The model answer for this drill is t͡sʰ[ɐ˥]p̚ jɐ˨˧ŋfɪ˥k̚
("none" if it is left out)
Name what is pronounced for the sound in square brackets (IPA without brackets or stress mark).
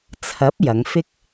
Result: ɐ˨˥